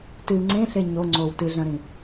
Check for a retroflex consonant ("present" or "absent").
absent